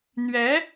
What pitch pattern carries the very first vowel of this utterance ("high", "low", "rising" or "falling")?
rising